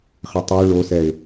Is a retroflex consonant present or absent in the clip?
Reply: present